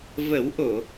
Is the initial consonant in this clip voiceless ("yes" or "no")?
no